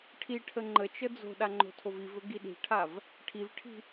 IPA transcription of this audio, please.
ʈʰ i ʈʰ ə ŋ͡ǃ ə t͡ʃ ə d͡z o̤ ɗ a ŋ͡ǃ o̤ tʰ o v i v ɵ ɡ i ɗ i̤ ʈʰ a v | ʈʰ i v ʈʰ i̤

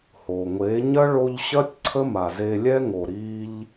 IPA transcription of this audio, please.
h o˨ ŋʷ e˨˦ ɲ ɐ˦ ɭ o˧ ʎ ɕ ɐ˦ tʲ ǀʰ ə˦ m a˨ z e˧ lʲ ɛ˦ ŋ o˨ ɾ i˧ ʎ

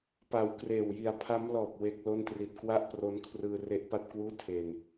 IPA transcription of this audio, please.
p a˩˦ w k r eː˨˩ w j i˨˩ a̯ pʰ a˦˥ m l ɔː˨˩ p̚ w e˦˥ k̚ l o˥˩ n t r i˨˩ t̚ k w a˥˩ ʔ p r o˦˥ n kʰ r ɯː˧ r e˦˥ ʔ p a˥˩ t̚ k w uː˥˩ tʰ e˧ n

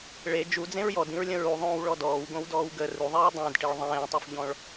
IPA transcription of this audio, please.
ɭ e d͡ʒ u d͡z ẽ ɹ j ɔ d ĩ ɹ lʲ ə̃ ɹ u ðˤ õː w ɭ ɔ d ɔː w ɡ õ w d ɔː w ɡ ə r u ðˤ iː dˤ ẽ d ʈ i ɭ ðˤ ẽː tˤ u f ʎ ɔ̃ ɭ

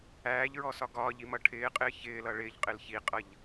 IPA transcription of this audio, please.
æː ʎ ɹ ɔ s ɒ ɡ ɒː ʎ i m ʌ ʈʰ ɪː qʼ ɪː ç ɪː l ʌ ɭ ɪː ʎ qʼ ɪ l ç i qʼ ʌ ʎ

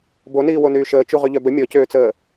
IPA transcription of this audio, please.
b o n iː w o n yː ʃ əː t͡ʃ u ʁ y ʎ œ b ə mʲ ɔ c øː t͡s əː

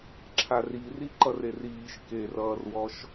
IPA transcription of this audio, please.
ǁʰ a r i r i ǃ ʌ r e r iː ʃ k e r ʌː r w ɔ ʃ

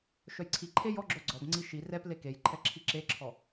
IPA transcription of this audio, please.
ʃ œ j ǀʰ i ǃʰ e j ɔ ɡ͡ǁ œ ɡ͡ǀ ɔ b ŋ͡ǀ i ʃ i r ɛ p l e k e j ǃʰ ɛ ǁʰ i ǁ e ǁʰ ɔ

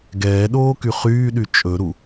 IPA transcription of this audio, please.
ɡ ɛː ɗ oː k y χ yː ɗ y t͡ʃʼ ɵ ɾ u

